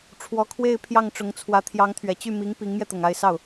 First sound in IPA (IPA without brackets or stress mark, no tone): ʈ͡ʂʰ